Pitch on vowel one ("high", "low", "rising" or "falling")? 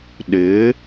rising